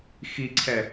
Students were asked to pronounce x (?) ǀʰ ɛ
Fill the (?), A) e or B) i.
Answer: B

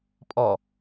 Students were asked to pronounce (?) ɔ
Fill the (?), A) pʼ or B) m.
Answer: A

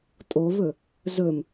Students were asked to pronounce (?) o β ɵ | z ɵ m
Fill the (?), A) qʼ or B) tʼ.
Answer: B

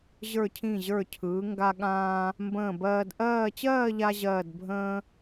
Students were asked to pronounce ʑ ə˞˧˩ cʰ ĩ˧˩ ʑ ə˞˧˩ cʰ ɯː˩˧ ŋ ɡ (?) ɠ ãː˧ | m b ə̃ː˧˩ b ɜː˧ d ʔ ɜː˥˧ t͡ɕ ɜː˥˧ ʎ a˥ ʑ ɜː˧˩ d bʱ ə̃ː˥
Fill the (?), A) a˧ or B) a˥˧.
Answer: A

